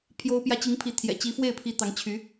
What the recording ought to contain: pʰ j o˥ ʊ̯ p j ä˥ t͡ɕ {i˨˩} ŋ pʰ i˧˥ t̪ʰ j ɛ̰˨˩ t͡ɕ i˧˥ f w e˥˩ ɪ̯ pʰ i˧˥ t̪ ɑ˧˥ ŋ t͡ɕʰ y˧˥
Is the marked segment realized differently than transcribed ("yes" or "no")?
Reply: yes